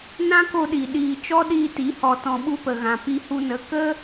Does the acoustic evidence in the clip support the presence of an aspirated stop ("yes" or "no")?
no